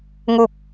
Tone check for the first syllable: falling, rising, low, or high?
low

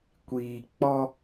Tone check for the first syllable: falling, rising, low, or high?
low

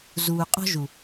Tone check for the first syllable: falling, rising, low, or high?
low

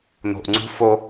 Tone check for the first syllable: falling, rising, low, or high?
low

